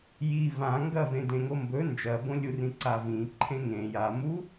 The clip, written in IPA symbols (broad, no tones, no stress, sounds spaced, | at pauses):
j i v ã ŋ ɡ ɐ v ẽ d ẽ ŋ o m b ɵ n d͡ʒ ɐ b õ lʲ u r ĩ ǀ a v ĩ ǃʰ ẽ ŋ ẽ j a m u